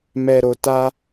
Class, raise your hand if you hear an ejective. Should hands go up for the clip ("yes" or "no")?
no